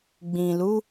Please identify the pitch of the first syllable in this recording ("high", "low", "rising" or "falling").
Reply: low